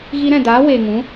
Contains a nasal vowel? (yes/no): yes